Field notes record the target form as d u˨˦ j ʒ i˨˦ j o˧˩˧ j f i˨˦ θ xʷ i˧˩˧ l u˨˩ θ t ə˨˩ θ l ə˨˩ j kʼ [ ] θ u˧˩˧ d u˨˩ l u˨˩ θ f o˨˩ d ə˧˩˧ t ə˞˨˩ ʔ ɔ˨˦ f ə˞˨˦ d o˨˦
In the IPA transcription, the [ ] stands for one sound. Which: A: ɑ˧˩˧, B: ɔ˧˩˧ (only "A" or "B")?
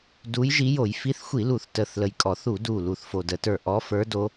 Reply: B